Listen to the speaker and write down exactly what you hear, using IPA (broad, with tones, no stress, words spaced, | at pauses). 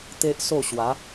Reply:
t̪e˦ʔso˥˧ ɕwa˨˦